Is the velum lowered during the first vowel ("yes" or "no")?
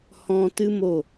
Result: yes